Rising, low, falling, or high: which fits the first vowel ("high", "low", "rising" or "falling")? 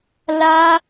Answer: high